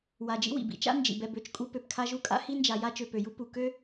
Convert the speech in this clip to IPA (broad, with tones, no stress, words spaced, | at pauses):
wa˩d͡ʒḭ˦ wḭ˩bḭ˨t͡ʃa̰˥ nd͡ʒḭ˩bɛ˨bø˨t͡ʃkʼu˦ pø˩pkʰa˦ʒu˦kʼa̰˥ hi˥nd͡ʒa˨ ja˥t͡ʃø˨pø˩ju˥ pu˩kø˥